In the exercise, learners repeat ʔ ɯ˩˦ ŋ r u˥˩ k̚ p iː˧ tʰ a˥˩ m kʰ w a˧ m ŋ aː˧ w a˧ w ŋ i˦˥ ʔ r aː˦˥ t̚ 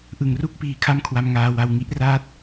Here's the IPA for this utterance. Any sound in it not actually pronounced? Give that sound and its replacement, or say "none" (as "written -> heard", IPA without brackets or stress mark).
tʰ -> kʰ